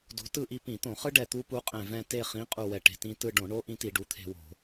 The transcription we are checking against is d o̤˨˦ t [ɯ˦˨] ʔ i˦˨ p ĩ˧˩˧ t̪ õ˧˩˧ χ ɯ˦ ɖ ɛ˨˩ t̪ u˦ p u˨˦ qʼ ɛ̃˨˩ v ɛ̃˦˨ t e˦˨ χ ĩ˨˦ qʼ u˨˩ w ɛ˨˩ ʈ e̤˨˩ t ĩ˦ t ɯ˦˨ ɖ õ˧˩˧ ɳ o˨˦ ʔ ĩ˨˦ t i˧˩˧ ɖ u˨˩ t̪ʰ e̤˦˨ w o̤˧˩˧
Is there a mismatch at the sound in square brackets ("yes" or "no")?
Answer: no